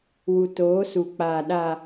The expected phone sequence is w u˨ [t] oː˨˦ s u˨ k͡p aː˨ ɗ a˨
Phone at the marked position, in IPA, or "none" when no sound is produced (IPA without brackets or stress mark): t